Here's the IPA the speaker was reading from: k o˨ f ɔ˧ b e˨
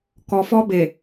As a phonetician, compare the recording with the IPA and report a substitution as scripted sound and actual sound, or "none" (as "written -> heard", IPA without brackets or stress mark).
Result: o˨ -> ɔ˨